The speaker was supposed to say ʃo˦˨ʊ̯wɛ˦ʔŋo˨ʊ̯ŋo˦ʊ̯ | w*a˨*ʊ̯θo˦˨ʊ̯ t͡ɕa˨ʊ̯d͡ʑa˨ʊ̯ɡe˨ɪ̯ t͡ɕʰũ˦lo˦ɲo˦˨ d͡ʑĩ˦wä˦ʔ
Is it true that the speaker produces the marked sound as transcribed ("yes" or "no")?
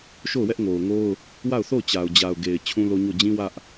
no